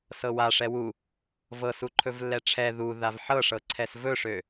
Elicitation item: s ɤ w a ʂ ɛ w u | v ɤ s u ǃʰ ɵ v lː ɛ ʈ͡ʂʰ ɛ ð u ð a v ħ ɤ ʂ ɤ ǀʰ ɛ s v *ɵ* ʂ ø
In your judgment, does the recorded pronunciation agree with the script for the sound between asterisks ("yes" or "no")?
yes